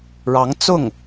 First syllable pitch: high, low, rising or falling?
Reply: rising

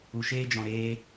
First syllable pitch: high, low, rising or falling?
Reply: low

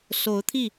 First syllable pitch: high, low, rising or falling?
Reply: rising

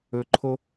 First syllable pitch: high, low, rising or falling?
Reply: low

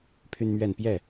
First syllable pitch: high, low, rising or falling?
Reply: high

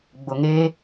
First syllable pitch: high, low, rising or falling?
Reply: low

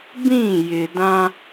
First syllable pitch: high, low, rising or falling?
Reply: falling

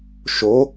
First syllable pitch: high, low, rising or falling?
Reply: rising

